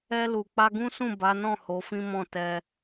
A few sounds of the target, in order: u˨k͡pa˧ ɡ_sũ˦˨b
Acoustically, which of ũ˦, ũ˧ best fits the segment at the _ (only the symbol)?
ũ˦